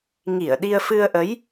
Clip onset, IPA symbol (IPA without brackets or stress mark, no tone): ŋ